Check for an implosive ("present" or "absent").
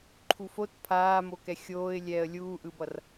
absent